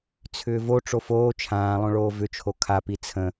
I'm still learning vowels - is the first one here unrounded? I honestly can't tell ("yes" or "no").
no